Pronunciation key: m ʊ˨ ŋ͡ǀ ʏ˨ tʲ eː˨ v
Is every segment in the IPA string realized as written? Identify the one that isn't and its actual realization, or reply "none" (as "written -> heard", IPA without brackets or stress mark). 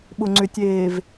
m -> ɓ